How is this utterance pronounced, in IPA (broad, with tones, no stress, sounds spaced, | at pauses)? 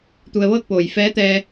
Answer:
t̪ u˧ ə̯ ʋ ɤː˥˨ k̚ p oː˩ j f ɛː˧˥ t̪ ɛː˧